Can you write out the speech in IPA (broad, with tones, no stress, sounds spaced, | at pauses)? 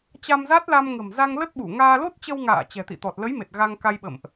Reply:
t͡ɕ a˧ m z a˦˥ t̚ l a˧ m ŋ ə̤˨˩ m z a˧ ŋ l ə˦˥ t̚ ɓ u˧˩ ŋ aː˧ l o˦˥ t̚ t͡ɕ ə˧ w ŋ a̰ː˧˨ t͡ɕ ɛ̤˨˩ t̪ ḭ˧˨ t̪ ɔ˨˩ t̚ l ə˨˦ j m e˨˩ t̚ ɣ a˧ ŋ k a˧ j ɓ ə̰˧˨ m ʔ